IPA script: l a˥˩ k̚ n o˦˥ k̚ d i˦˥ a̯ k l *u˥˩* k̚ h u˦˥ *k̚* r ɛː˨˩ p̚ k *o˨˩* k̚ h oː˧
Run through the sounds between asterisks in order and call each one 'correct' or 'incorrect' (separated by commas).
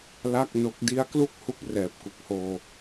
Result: correct, correct, incorrect